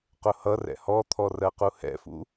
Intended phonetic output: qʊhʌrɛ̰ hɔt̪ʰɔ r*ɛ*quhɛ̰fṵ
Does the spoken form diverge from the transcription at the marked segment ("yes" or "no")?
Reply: yes